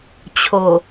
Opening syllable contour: low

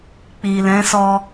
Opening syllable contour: low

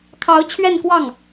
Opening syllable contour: rising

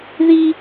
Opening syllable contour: high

